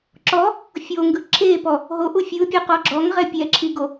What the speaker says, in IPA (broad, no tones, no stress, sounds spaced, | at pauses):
ǁ ɔ | fʲ o ŋ ɡ ɯ ǁʰ e p ɔ | ɦ o ʔ u fʲ ɯ pʲ o q ɔ ɡ͡ǁ ɔ ŋ ʁ ɛ pʲ ɛ ǁʰ i ɡ o